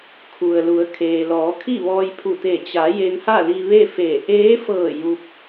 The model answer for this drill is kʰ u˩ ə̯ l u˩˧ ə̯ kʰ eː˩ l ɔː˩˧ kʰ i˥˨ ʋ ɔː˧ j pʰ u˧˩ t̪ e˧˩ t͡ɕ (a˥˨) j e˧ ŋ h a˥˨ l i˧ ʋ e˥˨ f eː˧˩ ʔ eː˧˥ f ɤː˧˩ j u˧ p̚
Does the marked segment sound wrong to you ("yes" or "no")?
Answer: yes